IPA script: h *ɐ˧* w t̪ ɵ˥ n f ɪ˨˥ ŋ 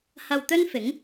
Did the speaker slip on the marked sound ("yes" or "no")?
no